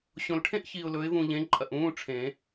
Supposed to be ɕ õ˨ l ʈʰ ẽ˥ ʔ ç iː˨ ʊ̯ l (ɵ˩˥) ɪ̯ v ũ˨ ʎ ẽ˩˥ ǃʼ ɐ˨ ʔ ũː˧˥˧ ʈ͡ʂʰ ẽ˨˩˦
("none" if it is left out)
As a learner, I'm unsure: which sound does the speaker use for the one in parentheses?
ɵ˩˥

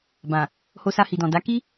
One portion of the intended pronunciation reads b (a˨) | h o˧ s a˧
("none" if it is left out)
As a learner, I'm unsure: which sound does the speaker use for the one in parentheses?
ã˨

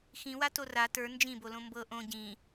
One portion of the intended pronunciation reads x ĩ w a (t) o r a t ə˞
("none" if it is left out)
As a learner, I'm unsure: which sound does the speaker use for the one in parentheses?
t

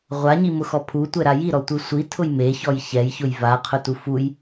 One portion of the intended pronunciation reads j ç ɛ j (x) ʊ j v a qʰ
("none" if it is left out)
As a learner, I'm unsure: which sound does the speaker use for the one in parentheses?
ç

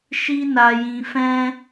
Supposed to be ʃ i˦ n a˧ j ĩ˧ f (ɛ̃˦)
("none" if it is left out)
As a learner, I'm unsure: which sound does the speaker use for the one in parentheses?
ɛ̃˦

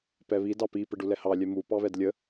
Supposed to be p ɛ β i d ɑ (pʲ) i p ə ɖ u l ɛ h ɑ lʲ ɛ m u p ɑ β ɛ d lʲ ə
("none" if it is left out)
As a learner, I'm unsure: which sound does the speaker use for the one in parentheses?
p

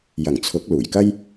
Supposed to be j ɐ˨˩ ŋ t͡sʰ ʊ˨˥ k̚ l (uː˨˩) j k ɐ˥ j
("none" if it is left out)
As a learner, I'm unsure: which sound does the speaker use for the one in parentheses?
uː˨˩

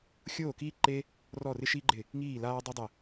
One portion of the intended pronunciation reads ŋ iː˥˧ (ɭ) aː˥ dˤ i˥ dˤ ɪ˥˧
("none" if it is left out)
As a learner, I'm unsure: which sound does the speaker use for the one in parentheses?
l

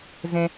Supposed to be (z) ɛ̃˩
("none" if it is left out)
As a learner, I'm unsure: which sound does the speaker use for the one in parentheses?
z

